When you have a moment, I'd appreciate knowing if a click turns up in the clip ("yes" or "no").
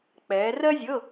no